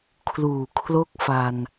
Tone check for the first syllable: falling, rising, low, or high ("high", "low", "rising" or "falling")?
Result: low